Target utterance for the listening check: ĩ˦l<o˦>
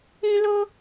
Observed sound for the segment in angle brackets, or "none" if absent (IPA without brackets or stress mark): o˦